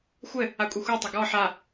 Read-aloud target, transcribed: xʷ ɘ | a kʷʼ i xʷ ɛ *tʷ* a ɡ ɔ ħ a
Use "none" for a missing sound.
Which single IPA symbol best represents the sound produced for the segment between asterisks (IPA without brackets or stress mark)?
tˤ